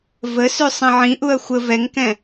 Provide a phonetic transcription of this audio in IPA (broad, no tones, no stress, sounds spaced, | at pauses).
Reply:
v ə s ʉ sˤ ɛ̃ ʕ ĩ ʔ u ɐ̯ xʷ ə v ɛ ŋ k ɛ̃